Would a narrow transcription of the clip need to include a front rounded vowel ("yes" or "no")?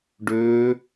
yes